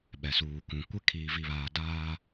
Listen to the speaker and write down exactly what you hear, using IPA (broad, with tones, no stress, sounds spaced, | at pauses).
ɓ ɛ˨ s uː˨ k ũ˨ kʷ ɪ˦ kʰ iː˨ v i˨ β aː˨ d aː˦